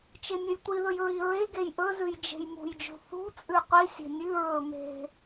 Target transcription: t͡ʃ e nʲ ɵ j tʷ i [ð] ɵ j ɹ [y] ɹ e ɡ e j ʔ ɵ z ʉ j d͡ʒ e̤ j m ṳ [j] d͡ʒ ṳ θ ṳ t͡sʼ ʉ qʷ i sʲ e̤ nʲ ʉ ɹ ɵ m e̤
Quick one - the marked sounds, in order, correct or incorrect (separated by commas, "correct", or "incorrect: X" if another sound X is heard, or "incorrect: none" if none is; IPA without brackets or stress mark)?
correct, incorrect: i, correct